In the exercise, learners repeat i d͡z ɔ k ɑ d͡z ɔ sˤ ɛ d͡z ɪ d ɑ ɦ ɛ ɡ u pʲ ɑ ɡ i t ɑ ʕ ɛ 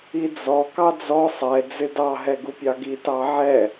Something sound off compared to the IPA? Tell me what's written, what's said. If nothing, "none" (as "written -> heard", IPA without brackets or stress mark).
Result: none